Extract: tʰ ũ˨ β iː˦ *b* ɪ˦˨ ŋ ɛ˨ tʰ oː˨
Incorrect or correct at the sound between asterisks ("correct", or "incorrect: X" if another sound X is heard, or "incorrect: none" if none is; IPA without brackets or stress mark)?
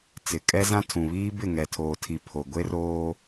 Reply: correct